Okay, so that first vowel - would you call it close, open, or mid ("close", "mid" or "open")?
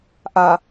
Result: open